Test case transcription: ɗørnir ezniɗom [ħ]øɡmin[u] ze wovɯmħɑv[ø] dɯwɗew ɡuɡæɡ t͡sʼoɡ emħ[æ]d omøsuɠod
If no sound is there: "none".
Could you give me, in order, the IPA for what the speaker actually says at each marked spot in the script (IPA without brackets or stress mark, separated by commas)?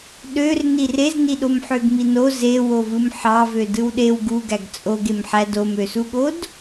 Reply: ħ, o, ø, æ